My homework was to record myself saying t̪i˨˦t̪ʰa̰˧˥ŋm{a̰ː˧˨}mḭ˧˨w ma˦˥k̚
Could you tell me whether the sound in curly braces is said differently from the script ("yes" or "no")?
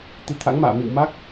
no